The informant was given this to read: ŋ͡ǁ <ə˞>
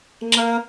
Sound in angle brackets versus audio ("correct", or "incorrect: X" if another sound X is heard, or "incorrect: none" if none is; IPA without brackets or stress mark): incorrect: ɐ